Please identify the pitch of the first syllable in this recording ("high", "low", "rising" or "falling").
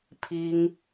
high